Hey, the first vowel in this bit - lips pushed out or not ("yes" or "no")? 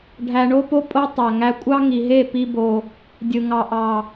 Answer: no